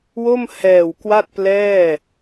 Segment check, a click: absent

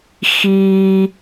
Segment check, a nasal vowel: absent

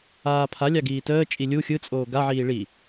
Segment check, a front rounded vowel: absent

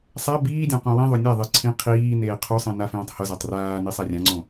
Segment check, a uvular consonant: present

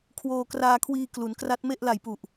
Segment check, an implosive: absent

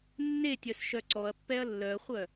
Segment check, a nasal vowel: absent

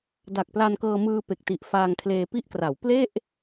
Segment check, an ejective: absent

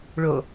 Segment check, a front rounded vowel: absent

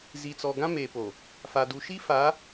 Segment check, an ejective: absent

